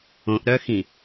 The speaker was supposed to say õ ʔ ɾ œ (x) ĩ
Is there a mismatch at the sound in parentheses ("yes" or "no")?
no